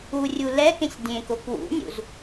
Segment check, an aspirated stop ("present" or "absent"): absent